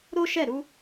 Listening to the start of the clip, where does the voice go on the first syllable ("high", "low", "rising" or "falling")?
high